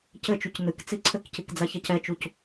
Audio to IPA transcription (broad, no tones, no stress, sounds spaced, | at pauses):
c ɘ t͡ʃ u c n ɨ k t͡s i ǀʰ ɘ k c i k d͡z a ç a c ɛ t͡ʃ u c